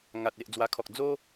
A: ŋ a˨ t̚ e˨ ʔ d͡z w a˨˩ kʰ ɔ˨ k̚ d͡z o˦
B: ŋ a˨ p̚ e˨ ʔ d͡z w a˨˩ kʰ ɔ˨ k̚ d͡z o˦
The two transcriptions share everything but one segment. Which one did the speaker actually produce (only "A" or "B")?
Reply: A